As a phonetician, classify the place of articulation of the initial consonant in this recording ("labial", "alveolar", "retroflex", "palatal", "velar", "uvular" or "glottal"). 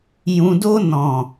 palatal